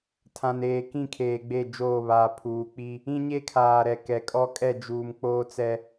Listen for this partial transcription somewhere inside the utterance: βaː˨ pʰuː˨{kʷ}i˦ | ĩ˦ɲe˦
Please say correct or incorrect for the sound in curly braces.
incorrect